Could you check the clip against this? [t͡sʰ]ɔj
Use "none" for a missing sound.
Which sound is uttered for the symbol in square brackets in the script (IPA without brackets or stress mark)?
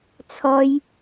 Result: t͡sʰ